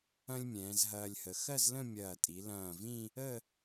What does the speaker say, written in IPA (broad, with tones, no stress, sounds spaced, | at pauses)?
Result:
ɐ̃˥ lʲ mʲ ɛ̃ː˩˧ z ɦ ɐː˧ lʲ h ə˩˧ x ɜ˥˧ z l ə̃˥˧ mʲ ɐː˧˩ tʼ i˩˧ l ɐ̃ː˧˩ v ĩ˥˧ | ə˥˧